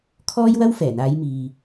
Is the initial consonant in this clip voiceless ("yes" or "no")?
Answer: yes